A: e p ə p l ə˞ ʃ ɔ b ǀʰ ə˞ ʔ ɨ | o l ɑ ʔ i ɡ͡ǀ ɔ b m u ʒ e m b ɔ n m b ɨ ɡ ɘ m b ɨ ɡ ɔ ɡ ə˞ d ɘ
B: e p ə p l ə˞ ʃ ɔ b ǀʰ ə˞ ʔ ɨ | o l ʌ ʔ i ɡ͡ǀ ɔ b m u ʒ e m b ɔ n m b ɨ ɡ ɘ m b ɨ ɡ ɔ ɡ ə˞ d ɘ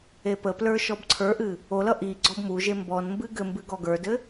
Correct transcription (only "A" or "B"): B